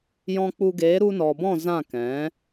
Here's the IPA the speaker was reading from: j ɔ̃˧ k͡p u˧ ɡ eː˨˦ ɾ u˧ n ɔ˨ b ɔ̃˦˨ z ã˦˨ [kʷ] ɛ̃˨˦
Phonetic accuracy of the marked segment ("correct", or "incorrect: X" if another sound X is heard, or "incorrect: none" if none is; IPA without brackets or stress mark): incorrect: k